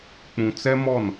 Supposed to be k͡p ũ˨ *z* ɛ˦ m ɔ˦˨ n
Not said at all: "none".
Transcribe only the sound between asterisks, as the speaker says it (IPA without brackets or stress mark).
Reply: t͡s